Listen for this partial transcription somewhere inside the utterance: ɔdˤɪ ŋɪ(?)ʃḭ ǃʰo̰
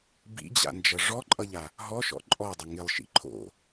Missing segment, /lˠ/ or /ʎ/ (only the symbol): lˠ